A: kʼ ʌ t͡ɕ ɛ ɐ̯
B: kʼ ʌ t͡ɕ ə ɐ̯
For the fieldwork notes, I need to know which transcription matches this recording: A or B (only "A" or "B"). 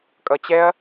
A